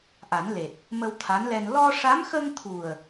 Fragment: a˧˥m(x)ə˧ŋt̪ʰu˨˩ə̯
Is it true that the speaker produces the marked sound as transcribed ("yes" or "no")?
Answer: yes